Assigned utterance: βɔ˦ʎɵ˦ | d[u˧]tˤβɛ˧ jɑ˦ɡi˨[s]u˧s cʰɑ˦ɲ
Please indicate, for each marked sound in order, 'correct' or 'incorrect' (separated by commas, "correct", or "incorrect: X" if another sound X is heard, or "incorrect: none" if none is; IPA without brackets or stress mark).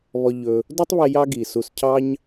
incorrect: u˦, correct